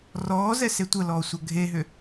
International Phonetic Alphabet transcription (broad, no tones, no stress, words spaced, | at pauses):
rɔːzɛse tʷəlɔːsʷɐ ɡʱeɦʏ